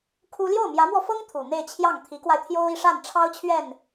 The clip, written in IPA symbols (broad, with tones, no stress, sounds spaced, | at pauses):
kʰ u˥ l j o˥˩ ʊ̯ m j ä˧˥ m w ɔ˧ f ɤ˥ ŋ t̪ʰ u˨˩ n̪ e˥˧ ɪ̯ t͡ɕʰ j ɑ˥˩ ŋ t̪ʰ i˧˥ k w a˧ ɪ̯ t̪ʰ j o˥ ʊ̯ i˥˧ ʂ a˥˩ n ʈ͡ʂʰ ɑ˥ ʊ̯ t͡ɕʰ ɥ ɛ˥˩ n